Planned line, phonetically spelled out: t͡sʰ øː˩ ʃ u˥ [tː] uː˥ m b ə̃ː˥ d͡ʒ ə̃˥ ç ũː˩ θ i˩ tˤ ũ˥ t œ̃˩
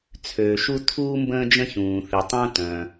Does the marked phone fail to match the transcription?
yes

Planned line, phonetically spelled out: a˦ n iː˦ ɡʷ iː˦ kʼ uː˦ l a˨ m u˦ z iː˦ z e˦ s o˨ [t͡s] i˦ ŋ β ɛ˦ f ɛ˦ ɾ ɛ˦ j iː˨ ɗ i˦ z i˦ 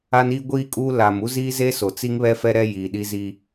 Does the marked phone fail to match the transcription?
no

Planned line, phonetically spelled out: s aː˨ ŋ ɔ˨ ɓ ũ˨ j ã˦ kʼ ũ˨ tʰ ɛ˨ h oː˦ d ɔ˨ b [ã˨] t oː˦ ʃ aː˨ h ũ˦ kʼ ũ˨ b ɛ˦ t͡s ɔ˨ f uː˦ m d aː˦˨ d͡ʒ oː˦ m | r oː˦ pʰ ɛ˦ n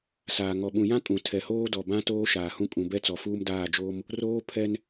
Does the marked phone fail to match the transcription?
yes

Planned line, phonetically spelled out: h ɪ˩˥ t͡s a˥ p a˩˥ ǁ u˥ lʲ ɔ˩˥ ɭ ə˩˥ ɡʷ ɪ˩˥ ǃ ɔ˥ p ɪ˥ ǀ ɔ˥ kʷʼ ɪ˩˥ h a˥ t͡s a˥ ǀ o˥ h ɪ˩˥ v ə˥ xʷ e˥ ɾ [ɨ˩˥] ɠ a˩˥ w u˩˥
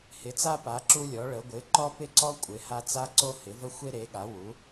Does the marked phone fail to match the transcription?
yes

